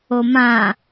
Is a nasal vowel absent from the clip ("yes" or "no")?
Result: no